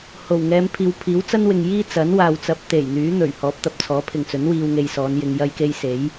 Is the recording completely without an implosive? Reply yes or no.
yes